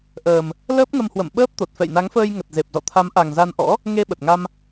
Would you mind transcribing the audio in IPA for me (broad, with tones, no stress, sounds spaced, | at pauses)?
ʔ əː˨˩ m | l əː˦˥ p̚ ŋ ə˧ m h w ə̰˧˨ m ɓ əː˦˥ p̚ t̪ o˨˩ t̚ f ɛ̰˧˨ j n a˨˦ ŋ f əː˧ j ŋ ə˨˩ t̚ z e˨˩ p̚ z ɔ̰˧˨ t̪ʰ a˨˦ m ʔ a˨˩ ŋ z a˧ n ʔ ɔ̰˧˥ | ŋ e˧ ɓ ə˨˩ t̚ ŋ a˧ m